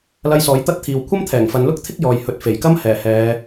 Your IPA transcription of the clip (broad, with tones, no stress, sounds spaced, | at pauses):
l ɐ˧ j s ɔː˨˧ j t̪ ɐ˥ t̚ t̪ʰ iː˨ w kʷʰ ɐ˥ m t̪ʰ ɛː˨˩ ŋ f ɐ˨˧ n l ʊ˥ k̚ t̪ʰ ɪ˥ k̚ j ɔː˨ j h ɵ˨ t̚ f e˨˩ j k ɐ˥ m h ɛː˨˩ h ɛː˨˧